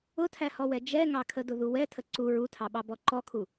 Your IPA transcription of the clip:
ʊ tʰ æ h ɔ w ɛ d͡ʒ ɛ ŋ ɑ kʰ ə d ʊ ð u w ɛ tʰ ə ǀ u ɹ u tʰ ɑ ɓ ɑ b ɔ ǃ ɔ kʰ u

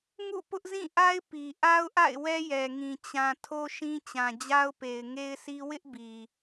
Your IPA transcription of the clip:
ŋ ṵ˦˨ p ʊ˦ ʔ z ĩ˦˨ ʔ a˦ ɪ̯ p i˨ ʔ a˦ ʊ̯ ʔ a̰˦˨ ɪ̯ w ɛ˦ j ɛ˨ ŋ ĩ˨ t͡ɕ ã˨ tʰ o˦ ʃ ĩ˦ t͡ɕ ã˨ d͡ʑ a˦ ʊ̯ p e˨ ɪ̯ ŋ e˦ ɪ̯ sʰ i˦ w ɪ˦ ʔ b i˨

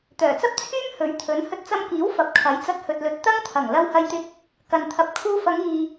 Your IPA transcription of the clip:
t̪ œː˨˩ t͡s ɐ˥ p̚ t͡sʰ yː˥ m h ɵ˨˥ ɥ t̪ʰ ɵ˨˥ n h ɵ˧ t̚ t͡s ɐ˧ m k iː˨˥ w f ɐ˨˥ p̚ kʰ ɐ˨˥ j t͡s ɐ˧ t̚ h ɵ˨ t̚ l ɵ˨ t̚ t̪ ɐ˥ ŋ t̪ʰ ɐ˨˩ ŋ l ɐ˧ w h ɐ˧ j t̪ ɪ˧ k̚ | k ɐ˨ n t̪ʰ ɐ˨ p̚ kʰ uː˧ f ɐ˨˧ ŋ iː˨

